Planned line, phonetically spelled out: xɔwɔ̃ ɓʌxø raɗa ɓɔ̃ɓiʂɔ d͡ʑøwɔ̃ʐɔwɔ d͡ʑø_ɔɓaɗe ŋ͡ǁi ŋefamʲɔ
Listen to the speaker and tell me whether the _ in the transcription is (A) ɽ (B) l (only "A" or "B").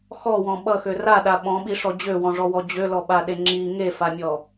B